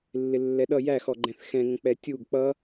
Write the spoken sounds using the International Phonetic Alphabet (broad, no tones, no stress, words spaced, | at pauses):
lːɪlːɛɗʌ jæxɔ ɡ͡ǃɛ̃θxɛ̃ŋə̃ k͡pɛtʲuɡ k͡pʌ